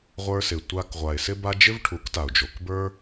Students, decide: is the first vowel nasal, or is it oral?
oral